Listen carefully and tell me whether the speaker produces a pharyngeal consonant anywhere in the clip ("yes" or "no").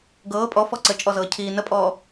no